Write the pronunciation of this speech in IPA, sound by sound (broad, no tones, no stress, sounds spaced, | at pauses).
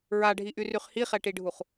ɹ a ɖʱ i ʔ y r y χ h i χ ɛ ʈ i ɖʱ u χ